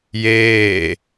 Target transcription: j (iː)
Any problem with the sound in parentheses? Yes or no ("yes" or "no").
yes